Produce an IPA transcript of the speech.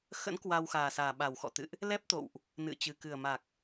x ə̰˧˥ n k w a˧ w x aː˨˩ s aː˨˩ ɓ a˨˩ w x ɔ̰˧˨ t̪ ɨ̰˧˨ ʔ | l ɛ˦˥ p̚ t̪ o̰˧˨ w ʔ | n ɨ̰˧˨ t͡ɕ ɨ˨˩ k ɨ˨˩ ə̯ m a˨˩ k̚

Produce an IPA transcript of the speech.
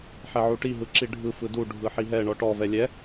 ħ ɛ ʕ u ʈ i ɦ ɯ ǁ i ɖʱ ɯ f ɯ d u ɖʱ ɯ ħ i ɦ ɛ ɳ ɔ ʈ ɔ v ɛ lʲ ɛ

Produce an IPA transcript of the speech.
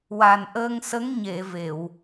w a˨˩ n ʔ əː˧ ŋ s ə˧˥ ŋ ɲ e˨˩˨ v e˨˩˨ w

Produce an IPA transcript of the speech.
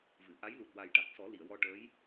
v ɨ˨˩˨ ʔ a˧˥ j l u˨˩ t̚ w a˨˩ j ʈ a˨˩ k̚ s ɔ˨˩˦ l i˨˩˨ ə̯ w ɔ˧ ʈ əː˧˥ j

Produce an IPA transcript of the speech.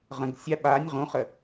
ʁ ə̃ ɡ sʲ a ɓ a nʲ ʁ ũ χ ə

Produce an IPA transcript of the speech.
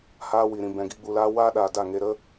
h aː˦ w i˨ ɾ ĩ˨ b ɛ̃˨ ɡ i˧ ɡ͡b u˨ l aː˦ w aː˦ ɗ aː˨ d a˦˨ ŋ e˧ ɾ ə˦

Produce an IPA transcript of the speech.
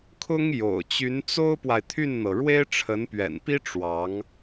kʰ ʊ˥ ŋ j o̰˨˩ ʊ̯ t͡ɕ y˧˥ n t͡s o˥ ʊ̯ p w a˨ ɪ̯ t̪ʰ y˥˩ n n̪ ɤ˩ ɻ w e˥ ɪ̯ ʈ͡ʂʰ ə˧˥ n p ɥ ɛ̰˨˩ n p i˥ ʈ͡ʂ w ɑ˧˥ ŋ

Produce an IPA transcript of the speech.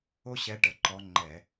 o˥ ɕ ɛ˧˥ ʈ ə˩˧˩ ǃ ɔ˧˥ ŋ͡ǃ ɛ˧˩˧

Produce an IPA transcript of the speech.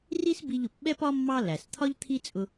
r i˥ s b i˧ ʎ ʊ˩ p ɓ ɛ˥ p ɒ˥ mː ɑ˥ l æ˩ s t̪ʰ ɒ˥ ʎ t̪ʰ i˥ t͡sʼ ʊ˧

